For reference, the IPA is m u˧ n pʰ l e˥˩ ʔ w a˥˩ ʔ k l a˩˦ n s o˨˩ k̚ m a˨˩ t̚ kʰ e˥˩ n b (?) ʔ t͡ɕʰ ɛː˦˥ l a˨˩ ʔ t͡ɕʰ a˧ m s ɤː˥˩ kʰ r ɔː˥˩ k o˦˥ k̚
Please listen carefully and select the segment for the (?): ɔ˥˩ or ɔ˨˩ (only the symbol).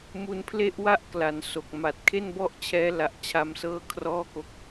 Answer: ɔ˥˩